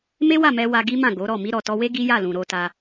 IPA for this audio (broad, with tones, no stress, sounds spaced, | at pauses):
m e˦ w a˦˨ m ɛ˧ w a˧ ɡ i˦ m ã˦˨ ɡ o˨˦ ɾ ɔ˦˨ m i˧ ɾ ɔ˨ t ɔ˧ w e˦ ɡ i˦ j a˦˨ l ũ˨ ɾ o˧ t a˧